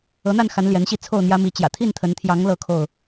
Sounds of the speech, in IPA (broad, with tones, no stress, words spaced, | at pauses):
ɤ˨˦n̪a˥˨nxa˨˦n ljɛ˨˦nɕi˥˨ t͡sʰo˥˨ʊ̯n̪jä˦mi˨˦ t͡ɕjä̰˨˩t̪ʰi˥˨nt̪ʰə˨˦nt̪ʰjɑ˨˦ŋ lɤ˥˨kʰo˥˨ʊ̯